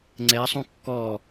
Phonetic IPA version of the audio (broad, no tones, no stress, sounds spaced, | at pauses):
ŋ͡ǀ ɛ sˤ ũ kː ɔ